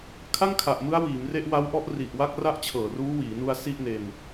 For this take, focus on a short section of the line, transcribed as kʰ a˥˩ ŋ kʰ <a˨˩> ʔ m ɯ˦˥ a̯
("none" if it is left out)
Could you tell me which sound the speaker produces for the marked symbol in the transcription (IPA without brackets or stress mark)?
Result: a˨˩